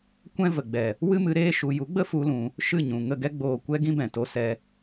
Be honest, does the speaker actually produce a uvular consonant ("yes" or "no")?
no